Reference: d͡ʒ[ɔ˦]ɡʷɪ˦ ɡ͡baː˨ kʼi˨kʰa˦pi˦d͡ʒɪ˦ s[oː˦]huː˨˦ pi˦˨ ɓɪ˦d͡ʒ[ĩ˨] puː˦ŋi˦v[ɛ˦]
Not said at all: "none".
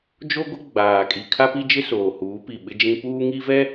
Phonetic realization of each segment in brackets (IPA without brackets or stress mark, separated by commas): o˦, oː˨, ĩ˦, ɛ˦